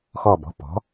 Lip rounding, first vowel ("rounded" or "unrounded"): rounded